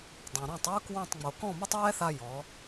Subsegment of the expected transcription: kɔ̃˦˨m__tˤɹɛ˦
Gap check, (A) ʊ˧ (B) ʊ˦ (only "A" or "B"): B